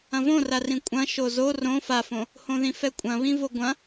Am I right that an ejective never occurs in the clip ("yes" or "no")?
no